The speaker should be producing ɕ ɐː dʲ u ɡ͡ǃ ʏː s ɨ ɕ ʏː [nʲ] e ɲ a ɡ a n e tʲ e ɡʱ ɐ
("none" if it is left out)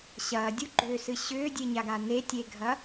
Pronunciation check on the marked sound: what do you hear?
dʲ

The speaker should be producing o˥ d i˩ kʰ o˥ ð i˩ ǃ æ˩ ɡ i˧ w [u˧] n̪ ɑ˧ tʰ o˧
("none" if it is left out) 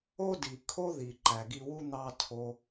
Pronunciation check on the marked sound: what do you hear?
u˥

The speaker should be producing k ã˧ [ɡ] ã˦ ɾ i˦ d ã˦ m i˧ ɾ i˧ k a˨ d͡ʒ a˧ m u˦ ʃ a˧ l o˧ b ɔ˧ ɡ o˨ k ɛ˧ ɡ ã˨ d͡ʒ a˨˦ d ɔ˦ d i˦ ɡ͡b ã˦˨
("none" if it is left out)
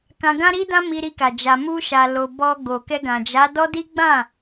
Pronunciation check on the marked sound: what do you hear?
ɡ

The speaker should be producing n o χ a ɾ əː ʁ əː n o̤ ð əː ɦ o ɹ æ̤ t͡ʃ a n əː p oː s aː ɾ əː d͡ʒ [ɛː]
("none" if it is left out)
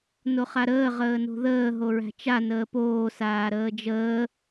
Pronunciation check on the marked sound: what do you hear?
əː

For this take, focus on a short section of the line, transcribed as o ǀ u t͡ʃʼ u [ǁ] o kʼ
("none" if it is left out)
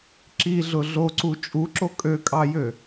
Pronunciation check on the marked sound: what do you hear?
ǁ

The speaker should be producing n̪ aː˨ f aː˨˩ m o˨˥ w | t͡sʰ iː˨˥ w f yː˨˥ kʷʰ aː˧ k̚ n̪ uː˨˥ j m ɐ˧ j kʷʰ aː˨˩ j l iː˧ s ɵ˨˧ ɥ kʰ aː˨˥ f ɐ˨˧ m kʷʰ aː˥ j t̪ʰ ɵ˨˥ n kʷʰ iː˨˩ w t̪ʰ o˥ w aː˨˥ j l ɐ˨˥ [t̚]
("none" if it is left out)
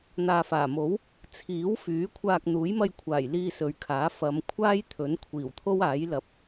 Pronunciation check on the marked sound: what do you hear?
p̚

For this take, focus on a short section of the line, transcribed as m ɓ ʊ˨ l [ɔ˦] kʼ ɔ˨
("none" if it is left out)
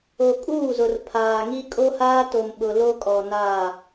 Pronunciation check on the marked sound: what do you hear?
o˦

